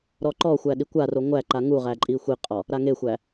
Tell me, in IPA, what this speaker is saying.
ɾ ɔ ǃ ɔ xʷ æ ɗ i kʷ a r o ŋʷ æ ǃ a ŋ u ʁ æ ǃʼ i xʷ i qʼ ɔ | ɾ a ŋ e xʷ æ

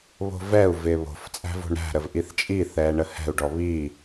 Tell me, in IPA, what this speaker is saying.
β o̤ v ɛ u̯ v ɪː β o̤ f t͡sʼ æ̤ v o̤ ɳ ɾ æ̤ ɾ ə v ʔ i θ t͡ʃʼ i θ ɛː ɳ ə h ɛ̤ u̯ ɖ ɔ β i

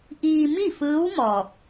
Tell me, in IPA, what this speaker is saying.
ʔ iː˧ m i˥˨ f ɯː˧˥ w m ɔː˧˩ k̚

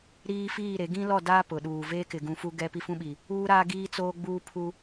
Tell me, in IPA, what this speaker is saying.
ɾ iː˦ f iː˦˨ ɾ e˨˦ ɡ ĩ˦ l ɔ˦˨ d aː˦ p ʊ˨ ɗ uː˨ v eː˦ k ɪ˨ ɡ ũ˨ f u˦ ɡ ɛ˦ p i˦ f ũ˦ ɓ i˨ | uː˦ ɾ aː˦ ɡ iː˦ t͡s oː˦ ɡ͡b uː˦ pʰ u˦

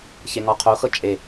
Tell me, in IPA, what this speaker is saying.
ç e ŋ ɔ qʰ o x ɤ t͡ʃʼ e

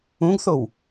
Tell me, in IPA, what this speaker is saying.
ũ ɡ θ o w

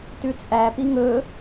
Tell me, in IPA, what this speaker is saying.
t ʉ t͡sʼ æ p i ŋ ɵ

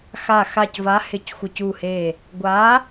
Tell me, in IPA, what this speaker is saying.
x a˧˩ x a˧˩ c v a˨˥ h ɪ˧˩ c xʷ ɪ˧˩ c u˧˩ h e˧˩ | ɡʷ a˨˥

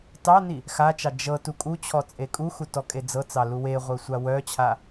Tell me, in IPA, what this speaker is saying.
t ɑ n i | x a t͡ʃ ɑ d͡ʒ ɤ t u kʼ u t͡ɕʰ ɔ t͡sʼ e kʼ u x u t ɔ kʼ e d͡z ɤ t͡s ɑ l u w e ʁʷ œ sʷ a w œ t͡ɕʰ a

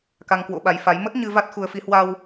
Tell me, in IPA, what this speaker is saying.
k a˧ ŋ k w o̰˧˥ ɓ a˨˦ j f a˨˦ j m ə˦˥ t̚ ɲ ɨ˧ v a˦˥ t̚ x u˨˦ ə̯ f i˨˦ h w a˧ w

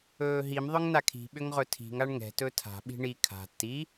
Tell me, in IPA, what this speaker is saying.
ɵː ɦ i m ðˤ ʏ ŋ n a kʰ i̤ ɓ ʏ ŋ ʁ ɵ tʰ i̤ ŋ a ɳ ŋ ɛ̤ t ɵ tʰ a̤ ɓ i̤ ɳ i kʰ a̤ t i

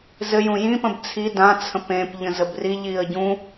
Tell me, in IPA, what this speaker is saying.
z ɘ j ũ j ĩ p ə̃ b t͡sʰ i d ã t͡sʰ ə̃ p ẽ p ʎ ə̃ z ə b r i ʎ i ə̯ ɟ ũ

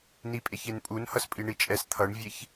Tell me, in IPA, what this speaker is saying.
n i pʼ e ç e n pʼ u n h ʌ s pʼ i ɳ i t͡ʃʼ ɛ s t̪ʰ ʌ ɳ vʲ e ç

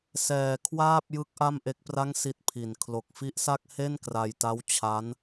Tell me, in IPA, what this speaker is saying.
s ɛː˩˦ kʰ w aː˥˩ p̚ j ɯ˦˥ k̚ ʔ a˥˩ m ʔ e˦˥ k̚ p r a˥˩ ŋ s i˦˥ t̚ pʰ i˨˩ n kʰ l o˨˩ k̚ f i˦˥ ʔ s a˥˩ k̚ h e˥˩ n k r a˧ j t a˦˥ w t͡ɕʰ a˦˥ n

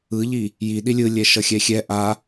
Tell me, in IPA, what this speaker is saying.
ɯ ʎ i | j i ɗ i lʲ ɯ lʲ ɛ ʃ ʌ xʲ ɛ xʲ ɛ ʔ a

